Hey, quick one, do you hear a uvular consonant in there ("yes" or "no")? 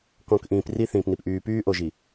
no